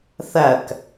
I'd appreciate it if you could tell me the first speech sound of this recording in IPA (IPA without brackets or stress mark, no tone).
θ